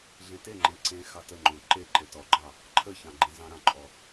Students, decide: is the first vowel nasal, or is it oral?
nasal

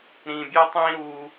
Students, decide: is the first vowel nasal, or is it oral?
nasal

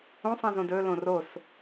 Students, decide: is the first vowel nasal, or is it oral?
nasal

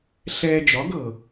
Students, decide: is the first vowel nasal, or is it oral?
oral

